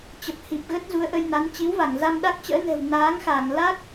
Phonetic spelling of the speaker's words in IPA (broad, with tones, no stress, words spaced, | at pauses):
t͡ɕə˨˩p̚hi˨˩p̚ɣə˦˥t̚ zu˨˦ə̯ʔə˧jna˨˦n t͡ɕi˨˦wva˧˩ŋza˧m ɗa˦˥k̚t͡ɕə̰ː˧˥nɛ̤˨˩w naː˨˦ŋxa˧˩ŋ la˦˥k̚